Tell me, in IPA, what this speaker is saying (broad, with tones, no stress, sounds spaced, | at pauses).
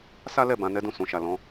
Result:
s a˦ l ɛ˦˨ b ã˨˦ n ɛ˦ d ũ˦˨ s ũ˨ ʃ a˨ l ɔ̃˨˦